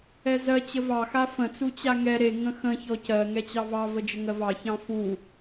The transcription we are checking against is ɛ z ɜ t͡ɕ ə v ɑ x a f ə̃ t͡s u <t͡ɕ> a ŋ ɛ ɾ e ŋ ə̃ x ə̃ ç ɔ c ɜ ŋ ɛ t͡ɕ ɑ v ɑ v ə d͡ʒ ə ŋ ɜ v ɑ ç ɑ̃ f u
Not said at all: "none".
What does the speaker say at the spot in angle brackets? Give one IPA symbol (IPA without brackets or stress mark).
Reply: t͡ɕ